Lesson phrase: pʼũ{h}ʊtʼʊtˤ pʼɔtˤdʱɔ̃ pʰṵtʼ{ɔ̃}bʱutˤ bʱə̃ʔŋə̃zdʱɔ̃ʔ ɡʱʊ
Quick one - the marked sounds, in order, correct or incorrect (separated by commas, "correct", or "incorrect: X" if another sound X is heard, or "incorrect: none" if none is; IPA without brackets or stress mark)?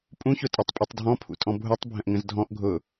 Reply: incorrect: ç, correct